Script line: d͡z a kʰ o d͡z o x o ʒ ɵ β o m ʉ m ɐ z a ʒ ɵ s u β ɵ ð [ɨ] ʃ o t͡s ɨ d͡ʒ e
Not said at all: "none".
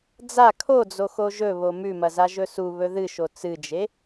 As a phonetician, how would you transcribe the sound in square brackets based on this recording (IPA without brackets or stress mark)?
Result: ɨ